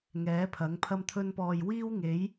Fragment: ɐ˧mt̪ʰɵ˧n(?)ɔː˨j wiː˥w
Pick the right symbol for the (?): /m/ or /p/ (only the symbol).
p